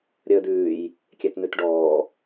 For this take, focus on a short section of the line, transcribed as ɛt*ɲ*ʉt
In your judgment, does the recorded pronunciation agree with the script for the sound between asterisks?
no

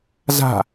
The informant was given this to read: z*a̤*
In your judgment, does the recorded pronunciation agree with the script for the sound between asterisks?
yes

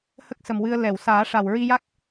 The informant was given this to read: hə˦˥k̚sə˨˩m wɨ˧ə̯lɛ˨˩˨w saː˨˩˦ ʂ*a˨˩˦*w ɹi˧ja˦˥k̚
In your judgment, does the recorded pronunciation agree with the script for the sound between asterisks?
no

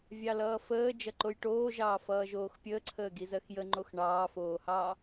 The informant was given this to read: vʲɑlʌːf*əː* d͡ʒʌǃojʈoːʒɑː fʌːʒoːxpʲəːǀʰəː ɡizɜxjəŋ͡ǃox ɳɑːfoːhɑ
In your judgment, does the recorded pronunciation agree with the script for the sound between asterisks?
yes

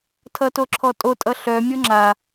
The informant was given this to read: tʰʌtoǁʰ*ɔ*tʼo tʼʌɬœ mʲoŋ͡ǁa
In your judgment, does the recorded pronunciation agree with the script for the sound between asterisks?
yes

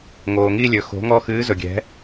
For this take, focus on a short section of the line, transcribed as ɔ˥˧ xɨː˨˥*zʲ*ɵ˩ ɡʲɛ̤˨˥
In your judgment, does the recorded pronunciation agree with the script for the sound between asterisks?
no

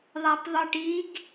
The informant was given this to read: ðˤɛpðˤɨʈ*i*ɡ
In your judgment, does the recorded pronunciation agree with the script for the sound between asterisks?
yes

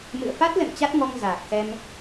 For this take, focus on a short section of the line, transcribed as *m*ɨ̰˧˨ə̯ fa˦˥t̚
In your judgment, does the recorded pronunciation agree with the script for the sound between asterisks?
yes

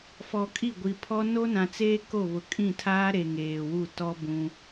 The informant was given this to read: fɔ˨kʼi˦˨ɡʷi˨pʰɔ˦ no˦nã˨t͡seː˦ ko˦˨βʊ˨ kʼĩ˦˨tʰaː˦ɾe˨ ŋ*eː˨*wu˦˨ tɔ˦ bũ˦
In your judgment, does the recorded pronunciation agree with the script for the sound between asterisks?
yes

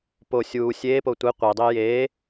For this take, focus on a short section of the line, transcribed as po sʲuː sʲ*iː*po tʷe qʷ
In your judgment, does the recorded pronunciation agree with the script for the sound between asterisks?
no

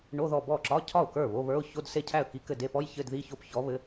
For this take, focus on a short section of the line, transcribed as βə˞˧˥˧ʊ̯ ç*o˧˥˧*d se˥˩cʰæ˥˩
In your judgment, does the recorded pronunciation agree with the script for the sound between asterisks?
yes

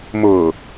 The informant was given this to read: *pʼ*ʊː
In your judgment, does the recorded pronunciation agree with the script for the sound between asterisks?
no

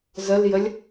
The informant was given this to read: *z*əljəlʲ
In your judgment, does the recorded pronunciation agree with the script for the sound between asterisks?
yes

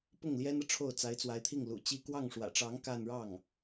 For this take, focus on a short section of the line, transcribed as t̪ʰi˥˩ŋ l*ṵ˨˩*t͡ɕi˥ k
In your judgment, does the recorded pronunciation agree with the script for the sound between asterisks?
yes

